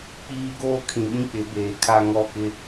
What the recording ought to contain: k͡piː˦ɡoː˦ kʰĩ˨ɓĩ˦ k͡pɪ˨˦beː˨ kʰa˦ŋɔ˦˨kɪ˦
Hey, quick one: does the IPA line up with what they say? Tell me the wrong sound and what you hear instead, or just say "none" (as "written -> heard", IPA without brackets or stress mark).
none